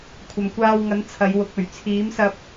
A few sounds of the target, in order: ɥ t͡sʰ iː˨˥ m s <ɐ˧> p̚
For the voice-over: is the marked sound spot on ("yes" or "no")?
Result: yes